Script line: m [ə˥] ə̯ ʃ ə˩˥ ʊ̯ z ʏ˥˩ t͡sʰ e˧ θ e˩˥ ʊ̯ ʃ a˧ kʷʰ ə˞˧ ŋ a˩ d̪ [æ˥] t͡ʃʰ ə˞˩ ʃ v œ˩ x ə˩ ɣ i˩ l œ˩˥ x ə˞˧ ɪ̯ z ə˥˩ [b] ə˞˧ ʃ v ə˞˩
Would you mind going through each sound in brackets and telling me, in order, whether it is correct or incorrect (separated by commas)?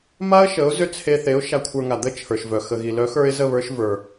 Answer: incorrect, incorrect, incorrect